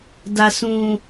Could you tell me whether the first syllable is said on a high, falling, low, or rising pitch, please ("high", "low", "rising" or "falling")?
low